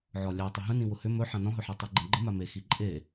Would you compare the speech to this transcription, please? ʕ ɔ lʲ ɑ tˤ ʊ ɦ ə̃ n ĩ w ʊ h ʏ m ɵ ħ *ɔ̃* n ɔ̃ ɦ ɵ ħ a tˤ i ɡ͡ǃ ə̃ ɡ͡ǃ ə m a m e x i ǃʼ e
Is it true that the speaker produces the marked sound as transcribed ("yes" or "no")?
no